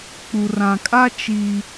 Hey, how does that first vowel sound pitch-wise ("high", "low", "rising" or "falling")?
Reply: low